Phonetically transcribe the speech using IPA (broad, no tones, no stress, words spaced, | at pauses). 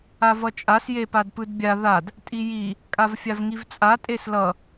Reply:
avʌt͡ʃʼas jepadpɯdbʲa ðad | tʼiji | kʼavfʲavŋivt͡sʼa tʼeslʌ